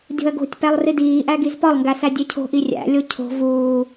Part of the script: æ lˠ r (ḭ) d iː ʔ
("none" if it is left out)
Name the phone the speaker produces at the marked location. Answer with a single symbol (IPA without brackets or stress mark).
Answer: i